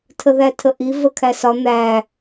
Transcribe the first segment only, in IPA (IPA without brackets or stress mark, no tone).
tʰ